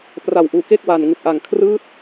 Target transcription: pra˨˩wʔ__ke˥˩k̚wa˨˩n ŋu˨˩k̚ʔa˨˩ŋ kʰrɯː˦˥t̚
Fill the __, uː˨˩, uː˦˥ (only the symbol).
uː˨˩